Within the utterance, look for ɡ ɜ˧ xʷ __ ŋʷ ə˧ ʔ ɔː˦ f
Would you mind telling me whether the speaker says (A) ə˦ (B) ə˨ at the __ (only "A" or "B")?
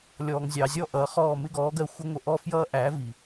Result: A